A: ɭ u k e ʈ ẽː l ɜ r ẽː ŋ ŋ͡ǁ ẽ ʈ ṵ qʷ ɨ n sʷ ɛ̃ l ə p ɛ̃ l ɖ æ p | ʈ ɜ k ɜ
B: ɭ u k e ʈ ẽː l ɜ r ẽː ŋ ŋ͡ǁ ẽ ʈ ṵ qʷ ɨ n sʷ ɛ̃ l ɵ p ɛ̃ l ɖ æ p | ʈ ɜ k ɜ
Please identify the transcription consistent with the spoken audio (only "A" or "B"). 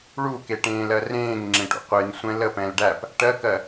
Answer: A